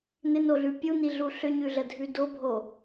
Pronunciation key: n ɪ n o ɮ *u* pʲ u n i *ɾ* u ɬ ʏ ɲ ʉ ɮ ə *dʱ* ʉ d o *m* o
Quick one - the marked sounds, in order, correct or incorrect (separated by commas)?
incorrect, incorrect, correct, incorrect